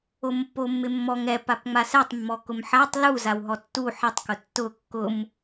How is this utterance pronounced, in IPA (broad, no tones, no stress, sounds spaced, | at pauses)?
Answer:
o m pː o mː ɪ mː ɔ ŋ ɛ p a p ŋ͡m a s ɛ tˤ mː ɔ k ʊ m ħ a tˤ l u z a w ɦ ɔ tː u ħ ɛ tˤ k ʊ tː ʊ kː ʊ m